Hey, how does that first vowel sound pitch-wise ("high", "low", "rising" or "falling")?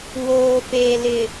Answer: low